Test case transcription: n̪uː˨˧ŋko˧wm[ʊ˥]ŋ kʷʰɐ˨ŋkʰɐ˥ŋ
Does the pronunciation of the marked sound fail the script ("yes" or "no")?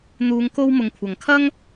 yes